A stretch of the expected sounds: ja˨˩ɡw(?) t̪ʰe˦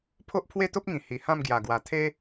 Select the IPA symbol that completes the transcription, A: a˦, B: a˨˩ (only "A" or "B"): B